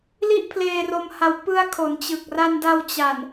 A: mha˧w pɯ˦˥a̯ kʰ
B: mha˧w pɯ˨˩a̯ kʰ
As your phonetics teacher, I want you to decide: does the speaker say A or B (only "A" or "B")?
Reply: A